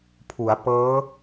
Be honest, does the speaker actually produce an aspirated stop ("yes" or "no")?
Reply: yes